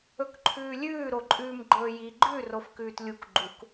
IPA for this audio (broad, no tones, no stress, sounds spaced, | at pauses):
ɵ k ǃʰ ʉː lʲ ʉː ɾ o ǃʼ ʉː m ɡ͡ǃ ɵː j i ɡ͡ǃ ʉ r o f k ʉː t lʲ u k ɡ͡ǃ u k